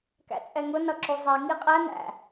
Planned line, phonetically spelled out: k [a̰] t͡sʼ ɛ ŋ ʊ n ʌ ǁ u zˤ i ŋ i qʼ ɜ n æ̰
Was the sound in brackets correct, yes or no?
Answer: no